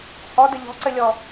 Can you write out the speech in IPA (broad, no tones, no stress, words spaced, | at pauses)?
hɔdə ʎɔ̤ǀɘlʲɔ